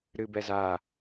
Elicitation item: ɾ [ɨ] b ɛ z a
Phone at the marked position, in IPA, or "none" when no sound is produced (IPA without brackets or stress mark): ɨ